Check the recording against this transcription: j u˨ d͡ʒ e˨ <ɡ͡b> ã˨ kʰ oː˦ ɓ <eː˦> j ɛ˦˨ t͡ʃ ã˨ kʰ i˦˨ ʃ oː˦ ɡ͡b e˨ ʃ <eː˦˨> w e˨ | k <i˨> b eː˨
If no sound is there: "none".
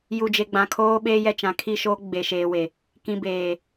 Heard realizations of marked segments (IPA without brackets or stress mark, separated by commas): ɡ͡b, eː˦, eː˨, ĩ˨